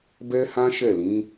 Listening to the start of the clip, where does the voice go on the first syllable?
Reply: high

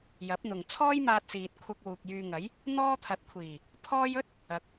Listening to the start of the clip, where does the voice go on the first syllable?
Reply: rising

